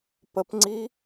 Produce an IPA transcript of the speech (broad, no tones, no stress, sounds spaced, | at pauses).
p ə p ŋ͡ǀ i